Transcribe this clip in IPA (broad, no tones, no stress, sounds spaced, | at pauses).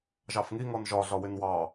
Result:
ʒ ɑ f ŋ i ŋ ɔ n ʒ ɒ ɮ ɒ w ɪ n w ɑ